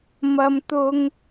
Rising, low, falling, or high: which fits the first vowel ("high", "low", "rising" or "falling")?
high